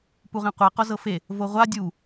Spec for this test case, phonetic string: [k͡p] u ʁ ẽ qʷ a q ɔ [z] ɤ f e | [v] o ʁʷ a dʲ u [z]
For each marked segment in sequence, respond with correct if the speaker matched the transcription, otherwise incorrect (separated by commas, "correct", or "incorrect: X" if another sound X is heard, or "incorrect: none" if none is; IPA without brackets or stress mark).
incorrect: p, correct, correct, incorrect: none